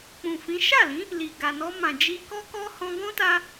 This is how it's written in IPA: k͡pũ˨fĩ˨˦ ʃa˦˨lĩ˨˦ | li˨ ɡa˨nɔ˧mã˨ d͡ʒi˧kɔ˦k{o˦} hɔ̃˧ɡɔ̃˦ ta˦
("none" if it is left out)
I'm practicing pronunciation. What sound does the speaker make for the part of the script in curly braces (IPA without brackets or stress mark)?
ɔ˦